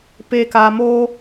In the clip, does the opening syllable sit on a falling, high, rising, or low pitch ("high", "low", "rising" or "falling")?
low